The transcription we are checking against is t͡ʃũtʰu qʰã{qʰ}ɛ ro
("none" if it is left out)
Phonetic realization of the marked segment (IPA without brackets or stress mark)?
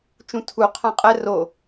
qʼ